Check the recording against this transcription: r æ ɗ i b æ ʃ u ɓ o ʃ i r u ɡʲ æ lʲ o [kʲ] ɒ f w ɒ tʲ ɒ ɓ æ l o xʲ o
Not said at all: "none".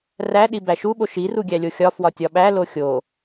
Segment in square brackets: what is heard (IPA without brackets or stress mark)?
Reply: xʲ